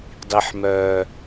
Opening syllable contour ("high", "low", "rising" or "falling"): high